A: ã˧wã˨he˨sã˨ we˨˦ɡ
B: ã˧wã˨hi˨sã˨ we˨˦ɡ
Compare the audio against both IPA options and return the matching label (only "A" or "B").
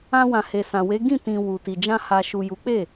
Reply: A